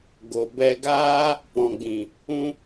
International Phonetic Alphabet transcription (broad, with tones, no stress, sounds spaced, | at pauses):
ɡ o˨ b ɛ˧ ɡ aː˦ | p ɔ̃˨ ɡ͡b ĩ˨ | ũ˧